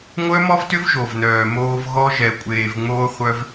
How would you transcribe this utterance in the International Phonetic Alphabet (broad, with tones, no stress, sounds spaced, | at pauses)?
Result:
ŋʷ œ˦ m ɔ˦ v t ʏ˦ v ʒ o˨ v n œː˨ m oː˧ v ɣ ɔ˦ ʒ ɛ˨ kʷʼ eː˨ v ŋ͡m oː˧ χʷ œ˧ v